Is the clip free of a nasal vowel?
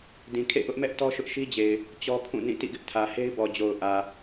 no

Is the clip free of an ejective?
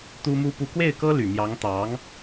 yes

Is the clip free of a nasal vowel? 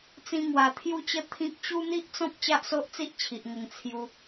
no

